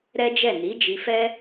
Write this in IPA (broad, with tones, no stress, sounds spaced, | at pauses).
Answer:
ɾ ɛ˦ d͡ʒ ɛ˦˨ n i˨˦ d͡ʒ i˧ f ɛ˦